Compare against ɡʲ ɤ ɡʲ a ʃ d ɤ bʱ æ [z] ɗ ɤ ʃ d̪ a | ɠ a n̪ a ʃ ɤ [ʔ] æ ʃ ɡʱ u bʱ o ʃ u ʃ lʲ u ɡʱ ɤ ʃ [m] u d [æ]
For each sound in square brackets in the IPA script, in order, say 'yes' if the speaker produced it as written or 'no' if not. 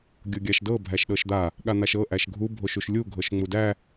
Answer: no, yes, no, yes

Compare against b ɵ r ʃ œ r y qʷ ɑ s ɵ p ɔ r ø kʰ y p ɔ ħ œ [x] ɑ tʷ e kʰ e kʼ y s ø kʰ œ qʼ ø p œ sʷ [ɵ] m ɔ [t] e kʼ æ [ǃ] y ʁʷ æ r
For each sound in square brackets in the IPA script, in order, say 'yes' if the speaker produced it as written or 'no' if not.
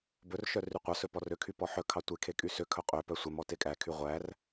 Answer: no, no, yes, no

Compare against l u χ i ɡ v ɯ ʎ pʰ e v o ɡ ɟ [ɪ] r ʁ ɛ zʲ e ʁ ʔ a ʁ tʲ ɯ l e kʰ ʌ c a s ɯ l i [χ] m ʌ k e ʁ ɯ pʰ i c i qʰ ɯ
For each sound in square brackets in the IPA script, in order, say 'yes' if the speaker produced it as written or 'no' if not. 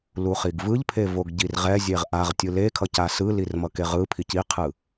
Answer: no, no

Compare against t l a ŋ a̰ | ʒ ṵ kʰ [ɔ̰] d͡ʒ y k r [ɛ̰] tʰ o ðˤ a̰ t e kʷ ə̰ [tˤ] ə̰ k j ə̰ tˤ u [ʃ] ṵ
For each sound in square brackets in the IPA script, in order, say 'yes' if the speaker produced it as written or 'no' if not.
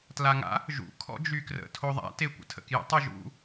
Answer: yes, no, no, no

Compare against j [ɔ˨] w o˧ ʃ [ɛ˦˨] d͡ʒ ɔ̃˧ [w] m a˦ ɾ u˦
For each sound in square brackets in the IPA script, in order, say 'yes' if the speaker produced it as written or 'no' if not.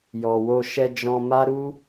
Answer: yes, no, no

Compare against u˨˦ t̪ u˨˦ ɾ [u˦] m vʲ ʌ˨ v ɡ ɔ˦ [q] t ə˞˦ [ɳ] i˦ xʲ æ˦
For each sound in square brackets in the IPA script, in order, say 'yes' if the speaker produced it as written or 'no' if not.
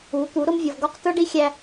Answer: no, yes, no

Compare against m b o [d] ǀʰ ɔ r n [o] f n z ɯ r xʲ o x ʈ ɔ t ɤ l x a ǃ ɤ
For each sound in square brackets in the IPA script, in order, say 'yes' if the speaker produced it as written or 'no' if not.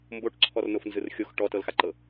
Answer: no, yes

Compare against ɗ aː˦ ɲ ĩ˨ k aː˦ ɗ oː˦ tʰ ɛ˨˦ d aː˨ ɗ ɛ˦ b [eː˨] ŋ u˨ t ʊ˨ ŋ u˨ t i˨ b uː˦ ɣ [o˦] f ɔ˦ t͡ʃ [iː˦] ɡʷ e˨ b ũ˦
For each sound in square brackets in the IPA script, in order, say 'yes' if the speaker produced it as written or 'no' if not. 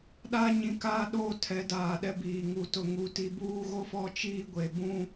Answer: no, yes, yes

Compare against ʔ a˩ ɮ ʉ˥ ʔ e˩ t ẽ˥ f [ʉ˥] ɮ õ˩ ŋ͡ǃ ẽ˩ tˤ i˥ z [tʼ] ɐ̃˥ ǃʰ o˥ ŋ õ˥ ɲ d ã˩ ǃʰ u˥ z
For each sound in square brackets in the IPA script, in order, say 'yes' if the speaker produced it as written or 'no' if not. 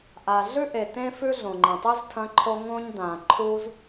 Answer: yes, no

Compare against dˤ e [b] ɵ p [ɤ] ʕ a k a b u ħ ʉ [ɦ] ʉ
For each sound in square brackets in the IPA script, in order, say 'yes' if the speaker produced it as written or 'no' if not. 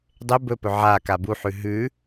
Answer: yes, no, yes

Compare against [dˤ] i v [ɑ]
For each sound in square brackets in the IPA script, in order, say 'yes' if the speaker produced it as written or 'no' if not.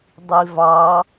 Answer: yes, yes

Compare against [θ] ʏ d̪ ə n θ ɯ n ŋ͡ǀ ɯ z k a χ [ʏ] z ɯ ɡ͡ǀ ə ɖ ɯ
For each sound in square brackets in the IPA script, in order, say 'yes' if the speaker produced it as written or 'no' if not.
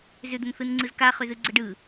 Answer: no, yes

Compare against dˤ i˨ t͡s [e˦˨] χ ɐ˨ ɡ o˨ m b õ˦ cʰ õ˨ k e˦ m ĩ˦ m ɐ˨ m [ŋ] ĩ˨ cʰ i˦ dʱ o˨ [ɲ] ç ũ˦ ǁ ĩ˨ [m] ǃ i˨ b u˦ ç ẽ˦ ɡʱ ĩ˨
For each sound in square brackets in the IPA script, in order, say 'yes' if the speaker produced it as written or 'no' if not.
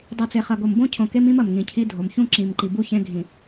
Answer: no, yes, no, yes

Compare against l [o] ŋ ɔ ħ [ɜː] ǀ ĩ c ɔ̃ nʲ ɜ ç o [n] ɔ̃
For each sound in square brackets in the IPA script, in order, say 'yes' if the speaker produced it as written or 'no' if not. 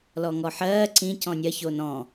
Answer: no, yes, yes

